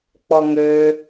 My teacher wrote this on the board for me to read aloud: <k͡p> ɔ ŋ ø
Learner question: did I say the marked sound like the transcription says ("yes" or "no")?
yes